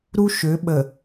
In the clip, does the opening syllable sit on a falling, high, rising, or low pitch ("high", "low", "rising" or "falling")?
high